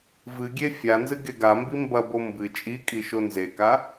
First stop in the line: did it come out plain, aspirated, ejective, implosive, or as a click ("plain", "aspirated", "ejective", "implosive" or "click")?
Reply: plain